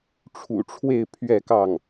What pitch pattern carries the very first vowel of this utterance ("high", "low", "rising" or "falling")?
low